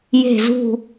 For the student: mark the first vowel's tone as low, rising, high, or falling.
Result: low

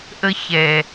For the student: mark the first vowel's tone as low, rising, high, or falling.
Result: high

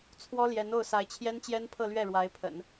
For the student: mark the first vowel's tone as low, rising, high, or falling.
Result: high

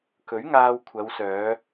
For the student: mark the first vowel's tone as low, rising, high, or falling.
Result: rising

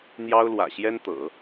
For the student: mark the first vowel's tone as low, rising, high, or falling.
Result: high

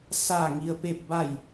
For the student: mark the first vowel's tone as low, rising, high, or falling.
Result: falling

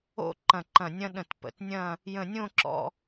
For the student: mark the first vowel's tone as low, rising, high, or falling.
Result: falling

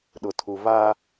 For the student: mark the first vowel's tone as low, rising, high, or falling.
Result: low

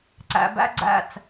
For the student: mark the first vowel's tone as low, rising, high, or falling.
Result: high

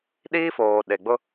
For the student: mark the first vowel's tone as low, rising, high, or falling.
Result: high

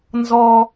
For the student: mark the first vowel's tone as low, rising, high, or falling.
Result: high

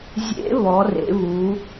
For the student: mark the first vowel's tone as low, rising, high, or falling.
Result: rising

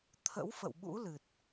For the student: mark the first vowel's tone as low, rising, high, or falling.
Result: rising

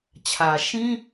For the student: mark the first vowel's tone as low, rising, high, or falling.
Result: low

